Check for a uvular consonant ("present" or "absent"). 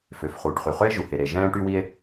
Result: present